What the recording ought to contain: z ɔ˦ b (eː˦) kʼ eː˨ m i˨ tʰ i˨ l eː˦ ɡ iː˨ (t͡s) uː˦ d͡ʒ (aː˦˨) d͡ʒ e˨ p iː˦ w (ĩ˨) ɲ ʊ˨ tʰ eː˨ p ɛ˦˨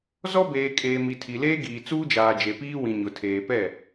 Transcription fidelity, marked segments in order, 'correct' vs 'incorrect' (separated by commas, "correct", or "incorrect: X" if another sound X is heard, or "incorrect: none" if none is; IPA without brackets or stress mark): incorrect: eː˨, correct, incorrect: aː˨, correct